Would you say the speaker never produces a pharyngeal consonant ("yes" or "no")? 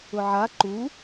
no